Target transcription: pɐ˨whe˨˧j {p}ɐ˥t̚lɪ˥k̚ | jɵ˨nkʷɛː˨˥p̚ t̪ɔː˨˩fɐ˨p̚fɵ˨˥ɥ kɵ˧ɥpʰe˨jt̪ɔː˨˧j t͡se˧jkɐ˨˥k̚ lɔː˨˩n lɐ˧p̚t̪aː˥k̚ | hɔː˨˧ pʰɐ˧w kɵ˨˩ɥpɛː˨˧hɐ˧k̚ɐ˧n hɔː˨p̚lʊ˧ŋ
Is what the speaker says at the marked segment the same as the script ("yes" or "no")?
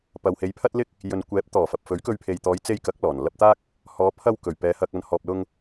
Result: no